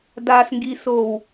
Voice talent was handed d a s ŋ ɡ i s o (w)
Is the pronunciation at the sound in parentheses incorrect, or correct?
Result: correct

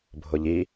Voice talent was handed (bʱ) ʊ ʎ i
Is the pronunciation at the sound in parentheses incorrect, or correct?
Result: correct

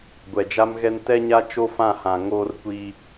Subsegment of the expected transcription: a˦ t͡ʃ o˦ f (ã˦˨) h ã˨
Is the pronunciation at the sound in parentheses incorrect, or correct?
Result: correct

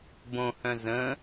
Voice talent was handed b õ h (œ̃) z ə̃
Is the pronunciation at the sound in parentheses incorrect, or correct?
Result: correct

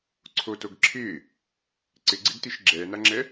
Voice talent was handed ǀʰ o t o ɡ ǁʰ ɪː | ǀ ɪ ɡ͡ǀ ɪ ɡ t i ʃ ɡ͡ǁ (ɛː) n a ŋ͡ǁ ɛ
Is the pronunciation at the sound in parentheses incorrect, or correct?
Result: correct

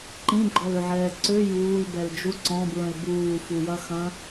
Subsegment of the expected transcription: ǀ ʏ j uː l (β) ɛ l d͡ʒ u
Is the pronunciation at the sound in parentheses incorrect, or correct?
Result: incorrect: b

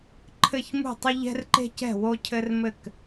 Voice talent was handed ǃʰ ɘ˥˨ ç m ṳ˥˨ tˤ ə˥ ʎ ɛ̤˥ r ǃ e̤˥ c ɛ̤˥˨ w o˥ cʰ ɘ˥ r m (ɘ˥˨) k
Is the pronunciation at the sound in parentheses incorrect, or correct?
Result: correct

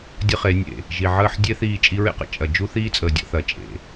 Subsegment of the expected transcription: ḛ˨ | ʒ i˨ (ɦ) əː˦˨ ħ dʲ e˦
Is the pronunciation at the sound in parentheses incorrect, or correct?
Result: incorrect: ʕ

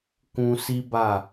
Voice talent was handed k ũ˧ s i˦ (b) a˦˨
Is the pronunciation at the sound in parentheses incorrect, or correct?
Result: correct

